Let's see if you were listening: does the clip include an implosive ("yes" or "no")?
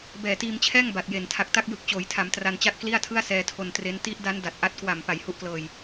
no